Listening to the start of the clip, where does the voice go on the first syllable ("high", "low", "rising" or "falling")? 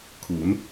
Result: rising